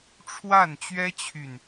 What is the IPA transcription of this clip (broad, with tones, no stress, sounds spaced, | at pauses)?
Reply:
ʈ͡ʂʰ w a˥˩ n t͡ɕ ɥ ɛ˥ t͡ɕʰ y˨ n